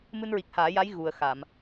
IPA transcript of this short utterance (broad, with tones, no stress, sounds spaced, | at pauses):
m ɨ˧ n ɹ i˨˩ k̚ h aː˨˩˦ j a˧˥ j ɣ u˨˩ ə̯ x a˨˩˨ m